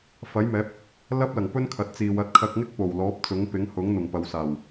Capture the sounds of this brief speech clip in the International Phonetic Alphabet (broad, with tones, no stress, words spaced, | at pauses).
fɐ˨˥jmɛː˨˥p̚ | lɐ˥p̚lɐ˨˩ŋpɵ˥n kʰɐ˨˥t̚t͡siː˨wɐ˧t̚ kʰɐ˧k̚ŋɪ˥k̚ po˨˩wlɔː˨˥p̚ t͡sʊ˨˥ŋpɪ˨˥ŋhʊ˨˥ŋ n̪ʊ˨˩ŋpɐ˨˧wsaː˨˩w